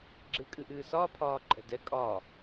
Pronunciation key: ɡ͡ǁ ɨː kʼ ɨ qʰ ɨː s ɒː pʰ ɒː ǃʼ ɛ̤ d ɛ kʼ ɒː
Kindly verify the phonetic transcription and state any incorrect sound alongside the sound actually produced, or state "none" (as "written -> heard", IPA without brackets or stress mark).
qʰ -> ʔ